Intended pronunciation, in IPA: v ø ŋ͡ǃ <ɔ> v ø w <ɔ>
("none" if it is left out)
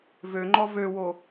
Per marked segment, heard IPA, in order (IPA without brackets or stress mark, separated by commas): ɔ, o